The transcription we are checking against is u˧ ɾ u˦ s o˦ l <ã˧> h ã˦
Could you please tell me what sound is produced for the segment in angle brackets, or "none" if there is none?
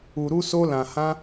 ã˧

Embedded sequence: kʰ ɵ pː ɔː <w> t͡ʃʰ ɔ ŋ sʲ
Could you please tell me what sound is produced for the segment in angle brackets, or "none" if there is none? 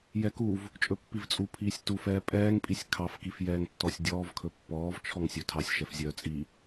v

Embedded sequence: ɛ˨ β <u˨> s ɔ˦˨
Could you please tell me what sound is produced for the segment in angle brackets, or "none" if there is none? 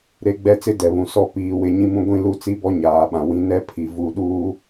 ũ˨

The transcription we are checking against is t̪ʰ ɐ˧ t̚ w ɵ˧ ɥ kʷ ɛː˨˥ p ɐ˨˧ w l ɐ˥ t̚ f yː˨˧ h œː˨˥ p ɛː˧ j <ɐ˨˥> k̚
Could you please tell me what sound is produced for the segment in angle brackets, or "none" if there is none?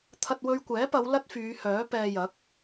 ɐ˨˥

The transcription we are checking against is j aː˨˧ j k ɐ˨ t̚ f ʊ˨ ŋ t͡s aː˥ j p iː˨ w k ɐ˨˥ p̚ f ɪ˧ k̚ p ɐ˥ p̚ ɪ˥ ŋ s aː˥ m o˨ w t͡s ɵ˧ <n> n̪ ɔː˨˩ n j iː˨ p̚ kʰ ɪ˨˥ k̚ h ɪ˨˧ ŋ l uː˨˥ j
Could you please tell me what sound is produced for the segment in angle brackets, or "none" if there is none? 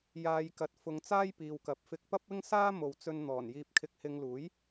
n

